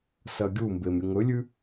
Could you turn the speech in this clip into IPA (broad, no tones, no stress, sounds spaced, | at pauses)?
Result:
s ɐ ɡʲ u m b e m ɾʲ ɨ ŋ ɵ lʲ ʉ